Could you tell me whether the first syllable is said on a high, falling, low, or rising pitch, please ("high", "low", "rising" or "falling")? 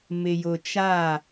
low